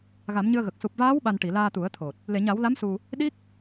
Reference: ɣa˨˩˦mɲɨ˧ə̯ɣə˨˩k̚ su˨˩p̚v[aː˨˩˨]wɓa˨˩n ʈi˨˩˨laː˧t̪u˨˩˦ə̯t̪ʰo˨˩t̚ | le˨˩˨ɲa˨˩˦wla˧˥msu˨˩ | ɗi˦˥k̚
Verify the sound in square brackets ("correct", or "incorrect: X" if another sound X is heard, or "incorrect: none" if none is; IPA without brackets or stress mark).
incorrect: aː˧˥